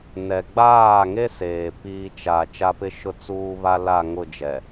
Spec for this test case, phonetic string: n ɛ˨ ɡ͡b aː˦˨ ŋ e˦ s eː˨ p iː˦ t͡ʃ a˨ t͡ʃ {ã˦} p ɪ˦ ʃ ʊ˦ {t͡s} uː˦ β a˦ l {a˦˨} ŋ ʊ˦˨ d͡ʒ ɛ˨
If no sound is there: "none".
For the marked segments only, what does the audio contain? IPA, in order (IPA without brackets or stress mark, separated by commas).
a˦, t͡s, a˦˨